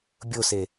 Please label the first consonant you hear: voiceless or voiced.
voiced